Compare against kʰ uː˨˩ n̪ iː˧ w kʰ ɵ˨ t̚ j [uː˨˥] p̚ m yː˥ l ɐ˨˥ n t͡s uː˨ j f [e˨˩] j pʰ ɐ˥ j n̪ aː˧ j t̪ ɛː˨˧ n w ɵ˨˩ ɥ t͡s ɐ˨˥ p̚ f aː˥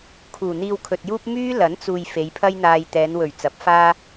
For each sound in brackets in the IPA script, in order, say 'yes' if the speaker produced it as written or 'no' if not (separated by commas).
no, no